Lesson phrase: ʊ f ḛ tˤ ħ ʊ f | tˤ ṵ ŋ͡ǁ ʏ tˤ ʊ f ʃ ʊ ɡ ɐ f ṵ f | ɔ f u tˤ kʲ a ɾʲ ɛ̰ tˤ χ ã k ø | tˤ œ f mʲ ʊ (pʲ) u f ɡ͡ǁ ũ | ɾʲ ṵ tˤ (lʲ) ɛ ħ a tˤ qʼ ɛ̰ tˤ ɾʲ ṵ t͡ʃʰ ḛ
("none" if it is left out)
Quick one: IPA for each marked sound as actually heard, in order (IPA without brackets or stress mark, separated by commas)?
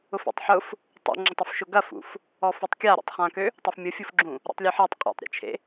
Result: fʲ, lʲ